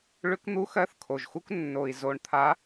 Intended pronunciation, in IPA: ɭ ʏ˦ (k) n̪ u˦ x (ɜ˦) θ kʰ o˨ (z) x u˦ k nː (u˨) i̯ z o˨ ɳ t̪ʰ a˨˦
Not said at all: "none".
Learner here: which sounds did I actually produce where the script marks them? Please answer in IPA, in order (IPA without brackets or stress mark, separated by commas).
k, ɜ˦, ʒ, o˨